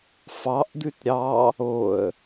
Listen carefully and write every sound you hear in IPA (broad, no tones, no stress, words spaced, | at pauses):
fɑʔ d̪ʉtɾʲɑ | oə̯